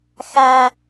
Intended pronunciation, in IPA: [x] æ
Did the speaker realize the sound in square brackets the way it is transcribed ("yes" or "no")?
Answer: yes